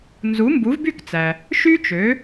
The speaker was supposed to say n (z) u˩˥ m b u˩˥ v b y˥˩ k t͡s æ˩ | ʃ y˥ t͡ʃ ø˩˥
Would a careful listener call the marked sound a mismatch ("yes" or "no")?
no